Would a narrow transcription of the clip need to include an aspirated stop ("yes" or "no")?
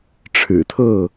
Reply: yes